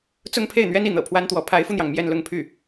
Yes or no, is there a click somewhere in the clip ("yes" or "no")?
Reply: no